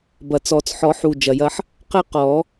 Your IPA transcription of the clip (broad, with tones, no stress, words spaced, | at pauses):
bɐ˨˩t͡sɔ˨˩˦t͡s ħɔ˨˩˦ħu˨˩ d͡ʒɐ˨˩jɐ˦ħ | qɘ˦qɔ˨˩˦